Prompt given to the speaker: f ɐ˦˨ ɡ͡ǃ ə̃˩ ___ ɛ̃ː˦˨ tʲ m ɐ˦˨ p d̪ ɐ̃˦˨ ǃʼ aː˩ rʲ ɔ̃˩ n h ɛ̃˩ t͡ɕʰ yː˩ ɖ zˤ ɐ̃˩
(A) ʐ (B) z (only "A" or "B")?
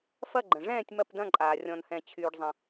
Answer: A